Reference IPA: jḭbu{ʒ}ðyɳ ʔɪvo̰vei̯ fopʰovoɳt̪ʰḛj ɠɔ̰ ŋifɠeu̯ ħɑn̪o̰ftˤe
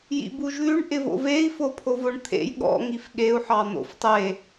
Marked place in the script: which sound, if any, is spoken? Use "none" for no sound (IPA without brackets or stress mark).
ʒ